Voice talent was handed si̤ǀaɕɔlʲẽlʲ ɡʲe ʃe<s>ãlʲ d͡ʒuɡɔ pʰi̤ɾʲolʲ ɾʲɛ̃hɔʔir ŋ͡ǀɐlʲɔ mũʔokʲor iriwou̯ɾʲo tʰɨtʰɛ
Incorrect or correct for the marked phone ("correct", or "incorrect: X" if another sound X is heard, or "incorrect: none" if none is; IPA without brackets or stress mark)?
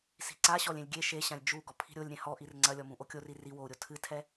incorrect: ɕ